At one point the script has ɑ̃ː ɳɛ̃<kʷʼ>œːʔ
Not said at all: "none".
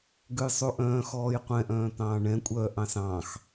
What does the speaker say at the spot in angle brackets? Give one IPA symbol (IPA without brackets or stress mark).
kʷʼ